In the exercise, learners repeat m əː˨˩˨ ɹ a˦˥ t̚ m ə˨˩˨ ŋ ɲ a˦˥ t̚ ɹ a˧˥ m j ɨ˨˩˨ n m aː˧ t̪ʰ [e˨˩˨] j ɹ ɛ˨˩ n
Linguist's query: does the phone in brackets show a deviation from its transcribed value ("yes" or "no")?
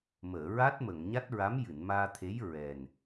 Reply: yes